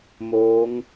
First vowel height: mid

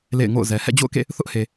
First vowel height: mid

